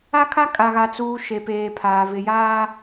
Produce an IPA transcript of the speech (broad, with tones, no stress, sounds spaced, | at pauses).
a˦ kʰ a˦ kʼ a˨ ɣ a˨ t͡s uː˨ ʃ e˨ p eː˨ pʰ aː˨ v ɪ˨ j aː˦